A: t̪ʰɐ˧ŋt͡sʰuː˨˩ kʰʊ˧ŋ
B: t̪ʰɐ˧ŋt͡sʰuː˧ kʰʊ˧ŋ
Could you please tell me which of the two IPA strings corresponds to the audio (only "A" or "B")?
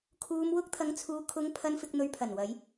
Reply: B